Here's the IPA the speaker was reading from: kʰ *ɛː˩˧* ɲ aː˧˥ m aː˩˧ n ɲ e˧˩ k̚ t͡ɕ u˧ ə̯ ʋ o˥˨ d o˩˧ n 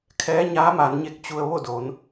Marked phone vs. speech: incorrect: ɛː˧˥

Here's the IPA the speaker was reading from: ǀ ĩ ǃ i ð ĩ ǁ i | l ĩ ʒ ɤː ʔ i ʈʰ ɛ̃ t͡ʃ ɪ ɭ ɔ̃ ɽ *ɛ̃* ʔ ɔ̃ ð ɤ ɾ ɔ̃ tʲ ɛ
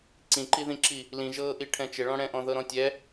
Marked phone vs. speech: correct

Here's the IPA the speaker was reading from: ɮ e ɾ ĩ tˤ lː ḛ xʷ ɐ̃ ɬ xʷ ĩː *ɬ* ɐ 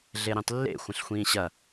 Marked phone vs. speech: incorrect: ɕ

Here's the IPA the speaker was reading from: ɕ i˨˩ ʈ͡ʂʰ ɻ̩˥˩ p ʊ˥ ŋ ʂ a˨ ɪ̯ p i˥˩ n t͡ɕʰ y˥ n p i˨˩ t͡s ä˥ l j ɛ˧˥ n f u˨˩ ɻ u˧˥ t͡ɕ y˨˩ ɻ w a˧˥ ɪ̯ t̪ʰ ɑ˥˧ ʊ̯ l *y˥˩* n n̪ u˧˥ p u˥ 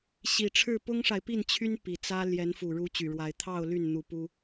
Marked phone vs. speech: correct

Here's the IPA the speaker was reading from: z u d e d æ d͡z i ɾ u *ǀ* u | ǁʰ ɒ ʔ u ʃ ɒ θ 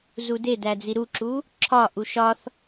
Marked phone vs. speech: incorrect: ǁ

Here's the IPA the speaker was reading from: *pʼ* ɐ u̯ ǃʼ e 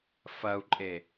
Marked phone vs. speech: incorrect: f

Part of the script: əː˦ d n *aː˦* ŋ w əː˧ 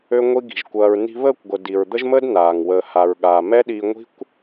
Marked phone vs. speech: incorrect: aː˨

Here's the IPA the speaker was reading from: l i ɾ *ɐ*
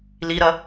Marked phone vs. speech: correct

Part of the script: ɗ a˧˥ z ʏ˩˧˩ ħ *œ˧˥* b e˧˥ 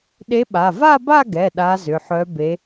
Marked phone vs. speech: correct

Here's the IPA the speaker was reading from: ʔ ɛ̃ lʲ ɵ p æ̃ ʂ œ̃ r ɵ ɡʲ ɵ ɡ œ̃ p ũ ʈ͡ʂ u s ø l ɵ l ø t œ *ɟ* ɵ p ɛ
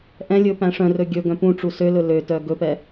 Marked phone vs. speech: incorrect: ɡ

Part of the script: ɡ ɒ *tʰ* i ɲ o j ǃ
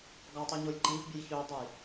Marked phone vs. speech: incorrect: tˤ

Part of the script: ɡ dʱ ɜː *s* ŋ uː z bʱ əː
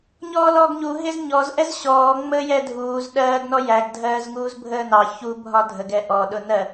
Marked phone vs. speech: incorrect: z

